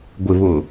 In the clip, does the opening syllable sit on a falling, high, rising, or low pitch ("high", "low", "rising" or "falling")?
low